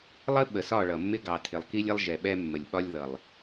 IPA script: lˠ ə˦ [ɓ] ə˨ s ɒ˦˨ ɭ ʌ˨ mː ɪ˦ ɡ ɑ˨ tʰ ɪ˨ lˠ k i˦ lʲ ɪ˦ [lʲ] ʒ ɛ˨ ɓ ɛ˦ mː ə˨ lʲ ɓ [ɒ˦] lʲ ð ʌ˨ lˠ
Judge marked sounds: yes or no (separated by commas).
yes, no, yes